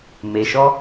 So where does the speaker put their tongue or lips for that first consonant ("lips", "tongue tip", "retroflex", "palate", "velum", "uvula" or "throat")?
lips